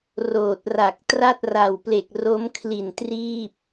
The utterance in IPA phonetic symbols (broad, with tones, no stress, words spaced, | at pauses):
roː˨˩t̚ra˨˩k̚ tra˥˩t̚ra˨˩wple˨˩k̚ ro˦˥mkʰli˨˩ntriː˥˩p̚